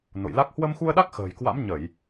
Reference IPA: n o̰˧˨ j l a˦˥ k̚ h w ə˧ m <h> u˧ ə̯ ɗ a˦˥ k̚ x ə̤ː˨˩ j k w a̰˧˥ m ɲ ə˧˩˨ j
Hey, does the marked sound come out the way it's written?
no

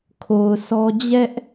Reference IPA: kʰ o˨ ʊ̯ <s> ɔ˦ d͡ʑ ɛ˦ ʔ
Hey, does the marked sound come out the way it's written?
yes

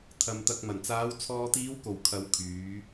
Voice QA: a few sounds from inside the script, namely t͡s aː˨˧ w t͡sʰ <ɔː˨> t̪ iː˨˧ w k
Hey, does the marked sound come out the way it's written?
yes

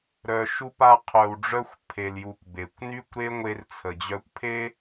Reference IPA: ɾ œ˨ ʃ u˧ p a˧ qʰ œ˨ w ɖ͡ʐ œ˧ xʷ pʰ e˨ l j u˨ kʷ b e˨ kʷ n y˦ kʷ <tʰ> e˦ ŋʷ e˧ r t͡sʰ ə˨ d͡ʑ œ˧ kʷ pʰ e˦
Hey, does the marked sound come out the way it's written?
no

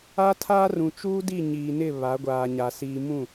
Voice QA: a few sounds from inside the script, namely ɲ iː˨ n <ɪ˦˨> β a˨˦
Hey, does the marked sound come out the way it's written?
yes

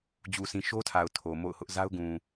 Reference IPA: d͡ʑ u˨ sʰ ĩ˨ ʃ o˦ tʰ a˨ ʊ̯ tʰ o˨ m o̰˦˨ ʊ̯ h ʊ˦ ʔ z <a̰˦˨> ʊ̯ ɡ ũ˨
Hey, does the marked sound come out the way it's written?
no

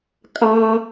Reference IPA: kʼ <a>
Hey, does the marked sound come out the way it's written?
yes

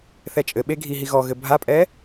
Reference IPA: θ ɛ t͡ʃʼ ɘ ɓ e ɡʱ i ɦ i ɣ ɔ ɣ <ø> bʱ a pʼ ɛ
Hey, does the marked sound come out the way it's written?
no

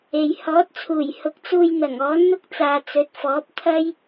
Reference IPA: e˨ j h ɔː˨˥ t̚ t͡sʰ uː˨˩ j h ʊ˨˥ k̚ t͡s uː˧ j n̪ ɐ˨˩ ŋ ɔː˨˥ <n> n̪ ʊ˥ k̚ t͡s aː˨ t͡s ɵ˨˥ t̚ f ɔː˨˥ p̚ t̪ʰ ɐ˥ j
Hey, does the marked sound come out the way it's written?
yes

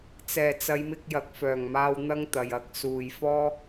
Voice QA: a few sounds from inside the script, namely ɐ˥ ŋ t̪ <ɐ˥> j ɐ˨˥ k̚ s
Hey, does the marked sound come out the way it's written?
no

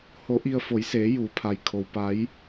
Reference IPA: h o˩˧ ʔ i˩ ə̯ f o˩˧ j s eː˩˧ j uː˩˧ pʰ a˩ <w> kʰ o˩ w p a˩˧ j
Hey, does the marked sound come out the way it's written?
no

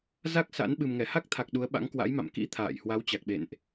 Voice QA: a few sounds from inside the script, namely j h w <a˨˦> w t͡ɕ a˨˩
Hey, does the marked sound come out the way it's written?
yes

